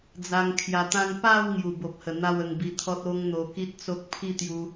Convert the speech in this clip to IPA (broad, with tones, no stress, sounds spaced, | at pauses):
d͡z a˧ ŋ kʰ j a˧ t̪ ã˦ ŋ p a˥˧ w ŋ j u˨˩ b o˨ p̚ h ə˨˩ n̪ a˥˧ w ə˧ ŋ b i˧ t̪ʰ ɔ˦ t̚ o˦ ŋ n̪ o˧ k i˦ t̚ t͡s o˦ k̚ pʰ i˥˧ t̪ j u˧